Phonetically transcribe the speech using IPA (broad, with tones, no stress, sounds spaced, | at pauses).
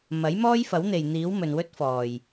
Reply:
m ɐ˨˥ j m ɔː˥ j f ɐ˨˥ w n̪ e˨ j n̪ iː˨˥ w m ɵ˨ n w ɵ˥ t̚ f ɔː˨˩ j